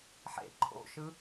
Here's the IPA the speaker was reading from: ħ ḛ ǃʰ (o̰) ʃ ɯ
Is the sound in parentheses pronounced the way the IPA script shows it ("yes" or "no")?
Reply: yes